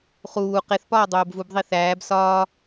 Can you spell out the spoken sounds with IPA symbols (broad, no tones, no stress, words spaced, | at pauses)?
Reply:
χuː qeθpɒː dˤoːbvub ðˤiθæːb sɒː